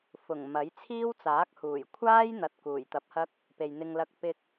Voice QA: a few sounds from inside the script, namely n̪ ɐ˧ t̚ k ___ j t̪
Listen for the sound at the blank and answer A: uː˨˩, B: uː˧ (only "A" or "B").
A